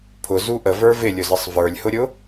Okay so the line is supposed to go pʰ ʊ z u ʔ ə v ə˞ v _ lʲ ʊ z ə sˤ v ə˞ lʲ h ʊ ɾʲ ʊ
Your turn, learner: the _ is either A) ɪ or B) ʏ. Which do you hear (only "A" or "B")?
A